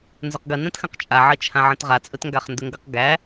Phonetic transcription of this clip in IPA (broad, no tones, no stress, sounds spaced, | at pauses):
n z ɵ q ɡ ə n ɛ̃ t x ə̃ q t͡ʃʼ a ʕ ə t͡ʃʰ ã ʕ ə̃ t ʁ a t͡sʼ ɵ t ŋ ɡ a χ n d ɵ ŋ ɡ ɤ q ɡ æ